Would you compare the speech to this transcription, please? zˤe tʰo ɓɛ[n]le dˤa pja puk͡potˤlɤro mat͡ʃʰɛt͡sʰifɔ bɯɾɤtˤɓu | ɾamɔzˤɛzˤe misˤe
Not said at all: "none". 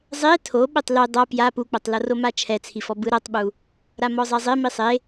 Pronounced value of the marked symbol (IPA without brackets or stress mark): tˤ